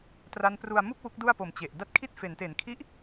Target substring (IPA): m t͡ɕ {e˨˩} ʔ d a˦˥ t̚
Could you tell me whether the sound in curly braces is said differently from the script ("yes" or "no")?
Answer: no